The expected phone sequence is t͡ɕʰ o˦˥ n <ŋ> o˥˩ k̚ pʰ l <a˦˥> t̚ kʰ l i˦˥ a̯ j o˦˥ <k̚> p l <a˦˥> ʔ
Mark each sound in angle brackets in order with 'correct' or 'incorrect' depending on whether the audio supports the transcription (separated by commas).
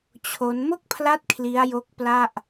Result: incorrect, correct, correct, incorrect